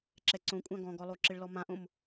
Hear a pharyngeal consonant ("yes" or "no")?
no